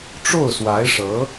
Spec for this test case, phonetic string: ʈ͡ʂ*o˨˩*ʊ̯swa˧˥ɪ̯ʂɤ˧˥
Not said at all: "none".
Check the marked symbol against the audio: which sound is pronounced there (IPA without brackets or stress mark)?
o˥˩